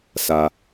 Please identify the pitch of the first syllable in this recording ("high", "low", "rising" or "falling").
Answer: low